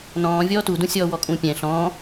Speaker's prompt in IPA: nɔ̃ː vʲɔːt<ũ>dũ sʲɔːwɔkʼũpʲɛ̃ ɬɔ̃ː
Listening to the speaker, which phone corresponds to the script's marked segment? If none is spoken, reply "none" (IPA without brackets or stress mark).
u